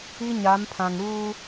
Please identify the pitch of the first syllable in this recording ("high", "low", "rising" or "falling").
high